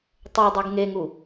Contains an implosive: no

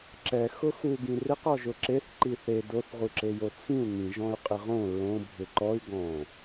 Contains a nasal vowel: yes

